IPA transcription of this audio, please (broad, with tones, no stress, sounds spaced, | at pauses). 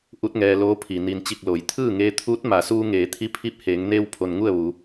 ʔ u˧˥ t̚ ŋ ɛː˧ l oː˧˥ pʰ i˩ n i˩ n t͡ɕ i˧˩ k̚ l o˩˧ j t̪ʰ ɯː˥˨ ŋ eː˧ t̪ʰ uː˧˥ t̚ m a˩˧ s uː˧ ŋ eː˩˧ t̪ʰ i˧˥ pʰ i˧˥ p̚ h eː˩˧ ŋ n eː˧ w pʰ o˩ n ŋ u˥˨ ə̯ ʋ u˩˧